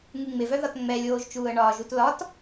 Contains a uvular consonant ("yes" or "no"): no